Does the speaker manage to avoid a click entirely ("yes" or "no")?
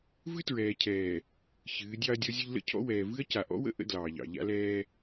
yes